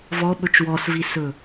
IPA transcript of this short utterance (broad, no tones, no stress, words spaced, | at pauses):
vɔɓɵt͡ʃ wɔsvisɵ